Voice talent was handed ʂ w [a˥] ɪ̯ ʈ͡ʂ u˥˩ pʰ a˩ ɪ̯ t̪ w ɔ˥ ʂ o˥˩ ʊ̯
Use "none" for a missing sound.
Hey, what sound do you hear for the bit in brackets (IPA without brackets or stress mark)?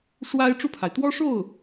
a˥